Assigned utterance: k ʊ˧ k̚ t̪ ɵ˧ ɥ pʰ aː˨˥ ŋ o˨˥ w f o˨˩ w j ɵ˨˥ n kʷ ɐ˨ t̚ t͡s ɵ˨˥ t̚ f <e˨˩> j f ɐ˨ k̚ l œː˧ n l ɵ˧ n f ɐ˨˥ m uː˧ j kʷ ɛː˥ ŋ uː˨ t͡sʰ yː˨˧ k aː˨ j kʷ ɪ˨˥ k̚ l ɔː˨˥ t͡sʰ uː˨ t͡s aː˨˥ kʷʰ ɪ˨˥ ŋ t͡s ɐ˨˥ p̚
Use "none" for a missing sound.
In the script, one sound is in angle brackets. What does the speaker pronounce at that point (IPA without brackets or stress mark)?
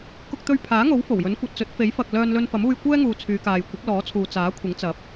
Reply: e˨˥